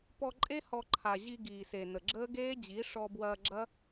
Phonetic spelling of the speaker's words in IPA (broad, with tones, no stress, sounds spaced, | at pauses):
p ɔ˧ ǃʼ e˦ h ɔ˧ ǃʰ a˨ ʑ i˧ ɡ iː˨ s e˨ n ə˨ ɡ͡ǁ əː˦ ɡ eː˦ d͡ʑ i˨˦ ʂ ɔ˧ b w ɐː˧ ɡ͡ǁ ɐ˦